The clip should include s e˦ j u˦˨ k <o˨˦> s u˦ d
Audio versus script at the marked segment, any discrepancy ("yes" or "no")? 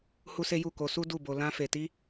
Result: no